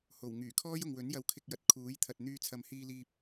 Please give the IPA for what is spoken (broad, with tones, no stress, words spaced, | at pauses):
ho˨˩w ŋyː˨˩kʰɔː˥jʊ˨ŋwɵ˨˥n jɐ˧wkʰɪ˧k̚jɐ˨t̚ kʰuː˨˥jt̪ʰɐ˨t̚ n̪yː˧t͡sʰɐ˨mhiː˧liː˧p̚